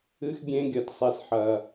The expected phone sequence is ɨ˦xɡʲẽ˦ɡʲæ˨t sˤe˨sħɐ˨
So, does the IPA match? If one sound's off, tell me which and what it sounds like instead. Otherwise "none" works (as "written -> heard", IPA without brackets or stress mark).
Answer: æ˨ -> ɐ˨